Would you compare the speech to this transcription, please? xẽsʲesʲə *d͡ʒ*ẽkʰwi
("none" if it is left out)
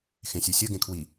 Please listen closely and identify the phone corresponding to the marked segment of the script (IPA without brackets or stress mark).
ɡ